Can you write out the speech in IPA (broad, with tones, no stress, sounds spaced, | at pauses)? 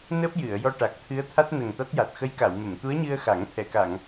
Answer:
n əː˦˥ p̚ j ɨ˨˩˨ ə̯ j ɔ˧ ʈ a˨˩ k̚ t̪ʰ ɨ˧˥ ə̯ t̪ʰ a˦˥ t̚ n ə˨˩ ŋ t̪ a˦˥ t̚ j a˨˩ t̚ x ə˧˥ j k a˨˩˨ w m ə˨˩˨ m t̪ u˧˥ ə̯ ɲ ɨ˧ ə̯ x a˨˩˦ ŋ t̪ʰ ɛ˨˩˨ k a˨˩˨ ŋ